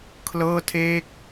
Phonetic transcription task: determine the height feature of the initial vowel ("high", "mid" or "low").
mid